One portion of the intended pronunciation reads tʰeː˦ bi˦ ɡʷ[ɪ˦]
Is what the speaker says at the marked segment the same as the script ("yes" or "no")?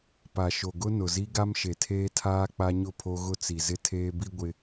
yes